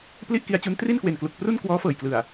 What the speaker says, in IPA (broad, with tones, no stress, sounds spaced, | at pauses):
p l i˥˩ ʔ k i˧ a̯ t͡ɕ u˦˥ n t r i˥˩ n k w e˨˩ n k l u˨˩ k̚ p r u˥˩ n k w ɔː˦˥ f ɤː˨˩ j k l ɯ˨˩ a̯